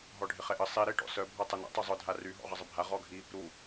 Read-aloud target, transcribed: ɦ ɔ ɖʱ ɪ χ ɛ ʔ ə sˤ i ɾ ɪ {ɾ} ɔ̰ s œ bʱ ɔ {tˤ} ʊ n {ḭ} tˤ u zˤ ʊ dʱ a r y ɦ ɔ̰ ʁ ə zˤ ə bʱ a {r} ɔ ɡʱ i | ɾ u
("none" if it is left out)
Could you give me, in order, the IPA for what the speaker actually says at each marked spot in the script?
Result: ʈ, tˤ, ḭ, ʁ

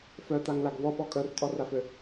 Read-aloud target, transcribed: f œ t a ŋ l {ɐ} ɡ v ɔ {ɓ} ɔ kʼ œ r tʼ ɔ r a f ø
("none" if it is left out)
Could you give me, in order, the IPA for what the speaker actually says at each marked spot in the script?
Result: a, ɓ

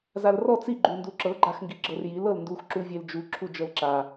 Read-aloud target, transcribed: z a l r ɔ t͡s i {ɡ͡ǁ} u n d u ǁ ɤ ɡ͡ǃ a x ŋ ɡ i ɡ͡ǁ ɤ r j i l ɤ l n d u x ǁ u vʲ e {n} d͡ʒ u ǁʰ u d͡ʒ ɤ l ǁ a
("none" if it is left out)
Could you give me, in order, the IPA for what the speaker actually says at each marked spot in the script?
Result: ɡ͡ǃ, l

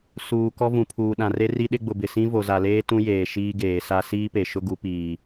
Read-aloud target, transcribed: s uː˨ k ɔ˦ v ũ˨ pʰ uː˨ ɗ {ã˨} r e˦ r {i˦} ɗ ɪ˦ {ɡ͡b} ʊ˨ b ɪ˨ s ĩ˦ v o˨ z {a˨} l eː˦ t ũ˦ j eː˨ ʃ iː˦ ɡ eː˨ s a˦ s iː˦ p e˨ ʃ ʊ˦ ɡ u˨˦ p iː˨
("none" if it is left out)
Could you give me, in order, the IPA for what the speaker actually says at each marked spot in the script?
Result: ã˨, i˦, ɡ͡b, a˨

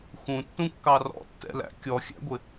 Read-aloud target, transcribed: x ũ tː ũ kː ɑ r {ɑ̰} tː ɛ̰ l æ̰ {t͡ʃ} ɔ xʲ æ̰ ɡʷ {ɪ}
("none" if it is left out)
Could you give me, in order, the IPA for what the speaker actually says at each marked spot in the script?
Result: ɔ̰, kʲ, ɪ

